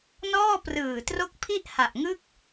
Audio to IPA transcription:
n ɔː˥˩ p r ɯː˨˩ t r o˦˥ k̚ pʰ i˥˩ ʔ h a˨˩ ʔ ŋ ɯ˥˩ k̚

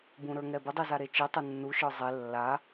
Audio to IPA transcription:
b ũ ɾ ə˞ ŋ ɛ b ɘ dˤ i z a ɾ e t͡ʃ i tˤ ɘ nː u ʃ ə˞ zˤ e lː a

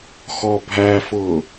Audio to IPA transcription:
x ɔ bʱ æ f ʊː

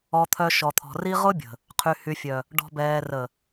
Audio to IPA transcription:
ɔ˨ t̪ʰ œ˨ ʃ ɔ˨ t̪ʰ ɔ̤˨ r i˦ ʁ ʊ˦ bʲ ə̤˨ | qʰ y˨ h y˨ fʲ œ˨ | ɖ ɔ̤˨ b ɛː˨ r ə˨

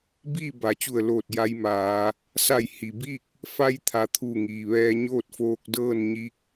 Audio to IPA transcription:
b iː˥˨ b a˩˧ t͡ɕ u˧˩ ə̯ l oː˧˩ t̚ j a˧˥ j m aː˩˧ | s a˧˩ j h i˩ b i˥˨ k̚ | f a˧ j t̪ʰ a˩˧ t̪ʰ u˧˩ ŋ iː˩ ʋ ɛː˧ ɲ oː˥˨ t̚ f oː˧ k̚ d ɤː˥˨ n ɲ i˧˥ k̚

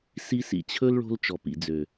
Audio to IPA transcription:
s i˧ s ḭ˨ t͡ɕʰ ɵ˦ l ɭ o̤˧ l t͡ʃ ɔ˨ p ḭ˨ d͡z ø˨

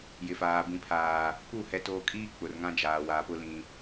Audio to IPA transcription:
j ɪ˨ f aː˨ b ĩ˨ pʰ aː˨ | p u˦˨ h ɛ˨ t oː˨ kʼ iː˦ k͡p ʊ˨ r ŋ ã˦ d͡ʒ aː˨ w a˨ p ʊ˦ l ĩ˨

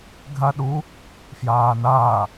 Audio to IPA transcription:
ɡʱ a ɗ u | f j aː n aː

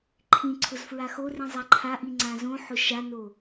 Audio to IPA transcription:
ǃʰ ĩ ǀʰ ʊ z f ɹ a x o r ĩ zˤ a ǃʰ a ʔ i ŋ͡ǀ ã z õ ħ ʊ ʃ a n o

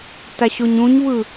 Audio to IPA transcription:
t a ɕ o ɲ ũ ɲ β ɯ

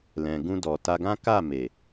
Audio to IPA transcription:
l ɛ̃˨ ɡ ũ˧ d ɔ˨ t a˧ ɡ ã˦ k a˦˨ m e˨

